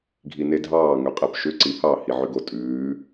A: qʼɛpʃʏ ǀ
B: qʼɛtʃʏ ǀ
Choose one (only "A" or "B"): A